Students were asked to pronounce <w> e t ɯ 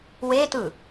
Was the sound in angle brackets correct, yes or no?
yes